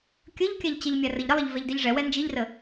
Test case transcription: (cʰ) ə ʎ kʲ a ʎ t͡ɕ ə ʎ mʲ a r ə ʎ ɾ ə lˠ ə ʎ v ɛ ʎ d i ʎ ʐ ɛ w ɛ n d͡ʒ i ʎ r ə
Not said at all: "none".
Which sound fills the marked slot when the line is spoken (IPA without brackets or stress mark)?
kʲ